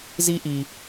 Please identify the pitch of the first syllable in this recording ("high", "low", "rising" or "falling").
high